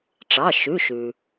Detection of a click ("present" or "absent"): absent